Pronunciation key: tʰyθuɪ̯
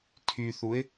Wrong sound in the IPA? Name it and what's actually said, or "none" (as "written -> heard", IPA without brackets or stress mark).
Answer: none